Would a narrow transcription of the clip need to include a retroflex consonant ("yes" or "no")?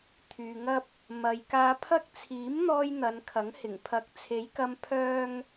no